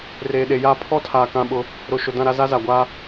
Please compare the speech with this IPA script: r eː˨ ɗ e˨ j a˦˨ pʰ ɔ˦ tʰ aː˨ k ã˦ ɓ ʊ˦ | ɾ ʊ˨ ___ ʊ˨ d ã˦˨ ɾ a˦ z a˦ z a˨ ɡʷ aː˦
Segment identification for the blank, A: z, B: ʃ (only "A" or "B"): B